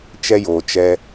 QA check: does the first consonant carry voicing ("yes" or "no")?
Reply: no